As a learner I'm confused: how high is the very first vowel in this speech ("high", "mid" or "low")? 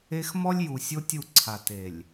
mid